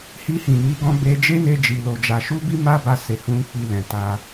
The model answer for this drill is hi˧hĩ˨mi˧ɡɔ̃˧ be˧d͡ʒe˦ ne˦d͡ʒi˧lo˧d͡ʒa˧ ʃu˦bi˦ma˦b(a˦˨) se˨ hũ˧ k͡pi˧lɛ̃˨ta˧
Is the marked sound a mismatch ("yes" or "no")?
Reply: yes